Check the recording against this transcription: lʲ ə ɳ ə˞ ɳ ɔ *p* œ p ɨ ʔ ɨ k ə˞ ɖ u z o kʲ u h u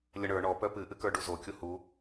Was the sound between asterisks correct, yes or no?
yes